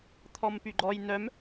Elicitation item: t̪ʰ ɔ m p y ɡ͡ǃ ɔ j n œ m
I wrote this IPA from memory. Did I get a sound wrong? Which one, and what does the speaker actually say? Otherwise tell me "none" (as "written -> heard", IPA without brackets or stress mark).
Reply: none